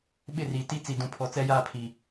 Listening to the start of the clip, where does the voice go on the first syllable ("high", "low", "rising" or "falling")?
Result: falling